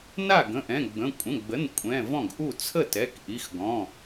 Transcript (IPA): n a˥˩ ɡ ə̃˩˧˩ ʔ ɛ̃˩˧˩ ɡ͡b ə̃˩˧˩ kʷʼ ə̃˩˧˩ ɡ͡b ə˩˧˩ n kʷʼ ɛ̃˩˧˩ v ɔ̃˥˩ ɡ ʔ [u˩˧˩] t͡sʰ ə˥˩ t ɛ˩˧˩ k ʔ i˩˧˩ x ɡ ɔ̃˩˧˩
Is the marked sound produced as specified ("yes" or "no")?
no